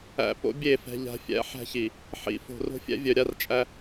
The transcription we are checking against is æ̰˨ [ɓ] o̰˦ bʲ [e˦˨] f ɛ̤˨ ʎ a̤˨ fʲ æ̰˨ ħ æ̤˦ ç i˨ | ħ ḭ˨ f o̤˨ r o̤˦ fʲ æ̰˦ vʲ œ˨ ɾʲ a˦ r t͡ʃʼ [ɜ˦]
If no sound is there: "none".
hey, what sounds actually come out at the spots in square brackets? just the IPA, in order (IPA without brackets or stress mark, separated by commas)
p, e˦˨, æ˦